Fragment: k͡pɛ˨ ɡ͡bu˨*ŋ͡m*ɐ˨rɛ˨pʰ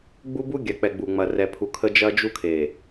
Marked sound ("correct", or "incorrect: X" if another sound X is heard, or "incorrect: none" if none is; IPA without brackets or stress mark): correct